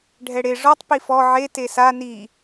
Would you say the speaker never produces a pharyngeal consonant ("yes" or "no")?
no